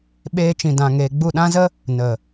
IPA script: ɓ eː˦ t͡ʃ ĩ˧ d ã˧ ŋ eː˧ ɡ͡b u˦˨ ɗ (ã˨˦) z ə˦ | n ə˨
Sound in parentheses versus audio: incorrect: ã˦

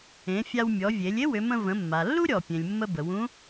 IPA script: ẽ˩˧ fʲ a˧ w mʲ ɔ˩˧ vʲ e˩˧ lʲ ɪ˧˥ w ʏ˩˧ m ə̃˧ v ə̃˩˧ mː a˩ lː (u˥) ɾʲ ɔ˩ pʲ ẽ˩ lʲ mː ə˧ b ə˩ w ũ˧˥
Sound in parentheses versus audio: correct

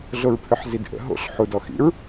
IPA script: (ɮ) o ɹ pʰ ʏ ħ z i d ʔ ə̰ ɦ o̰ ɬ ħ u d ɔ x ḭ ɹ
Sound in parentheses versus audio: correct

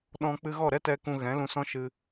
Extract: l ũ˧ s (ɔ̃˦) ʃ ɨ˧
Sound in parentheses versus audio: correct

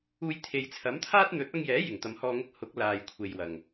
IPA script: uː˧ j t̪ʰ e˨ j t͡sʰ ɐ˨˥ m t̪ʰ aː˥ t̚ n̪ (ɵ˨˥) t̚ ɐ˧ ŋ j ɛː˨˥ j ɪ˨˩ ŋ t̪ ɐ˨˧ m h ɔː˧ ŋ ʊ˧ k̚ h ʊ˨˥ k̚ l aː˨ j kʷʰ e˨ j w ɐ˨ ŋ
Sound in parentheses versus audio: correct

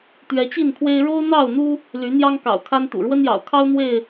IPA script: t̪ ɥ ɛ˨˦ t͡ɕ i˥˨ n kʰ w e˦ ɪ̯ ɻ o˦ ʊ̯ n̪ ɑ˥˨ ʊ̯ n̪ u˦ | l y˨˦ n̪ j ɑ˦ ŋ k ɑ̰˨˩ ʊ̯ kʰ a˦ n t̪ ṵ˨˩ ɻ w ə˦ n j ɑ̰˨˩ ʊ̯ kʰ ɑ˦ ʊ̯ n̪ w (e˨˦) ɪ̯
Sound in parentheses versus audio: incorrect: e˥˨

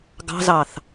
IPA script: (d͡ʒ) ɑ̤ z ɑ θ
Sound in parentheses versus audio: incorrect: ɡ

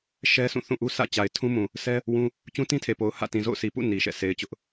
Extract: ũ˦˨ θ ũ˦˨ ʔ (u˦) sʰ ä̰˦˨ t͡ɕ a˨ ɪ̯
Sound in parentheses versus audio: correct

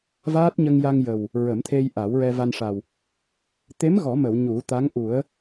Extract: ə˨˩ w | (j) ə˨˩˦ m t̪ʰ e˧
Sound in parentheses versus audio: incorrect: ɹ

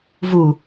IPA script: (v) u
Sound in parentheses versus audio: correct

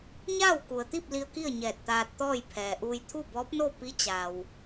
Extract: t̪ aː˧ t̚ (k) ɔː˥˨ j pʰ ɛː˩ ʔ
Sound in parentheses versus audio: incorrect: t̪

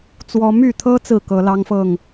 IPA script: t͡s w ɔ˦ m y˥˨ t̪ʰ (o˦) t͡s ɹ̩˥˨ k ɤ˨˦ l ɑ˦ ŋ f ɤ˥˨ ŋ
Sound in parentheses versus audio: incorrect: ɤ˦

